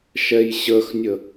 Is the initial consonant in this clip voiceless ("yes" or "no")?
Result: yes